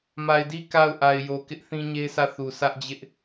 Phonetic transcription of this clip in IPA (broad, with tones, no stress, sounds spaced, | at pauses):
m a˨ ɪ̯ d i˦ k a˦˨ ʊ̯ ʔ a˨ ɪ̯ j o˨ k ɪ˦ ʔ θ ĩ˦ ɲ e˦ sʰ ä˦˨ θ u˨ s ä˦ ʔ d͡ʑ ɪ˦ ʔ